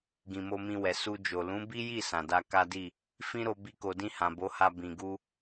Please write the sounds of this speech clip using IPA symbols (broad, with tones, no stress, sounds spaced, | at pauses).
ɡ ĩ˨ m o˧ m ĩ˧ w ɛ˨ s u˧ d͡ʒ o˨ l ũ˨˦ b i˦ j i˦˨ s ã˨ d a˧ k a˦ d i˦˨ | f ĩ˦ ɾ o˧ b i˧ k o˨ d ĩ˧ h ã˨ b o˨˦ h a˧ b ĩ˨ ɡ u˧